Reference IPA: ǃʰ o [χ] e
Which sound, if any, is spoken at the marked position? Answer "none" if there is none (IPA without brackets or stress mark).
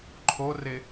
r